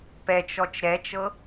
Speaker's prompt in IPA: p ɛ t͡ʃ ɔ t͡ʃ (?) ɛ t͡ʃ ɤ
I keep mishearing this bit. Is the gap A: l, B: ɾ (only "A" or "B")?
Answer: B